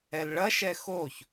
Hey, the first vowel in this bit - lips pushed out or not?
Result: no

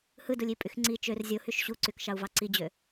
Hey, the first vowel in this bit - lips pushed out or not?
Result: no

